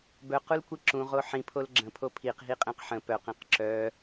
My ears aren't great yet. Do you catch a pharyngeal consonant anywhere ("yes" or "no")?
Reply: yes